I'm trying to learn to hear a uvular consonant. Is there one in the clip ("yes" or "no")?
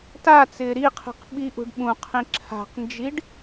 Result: yes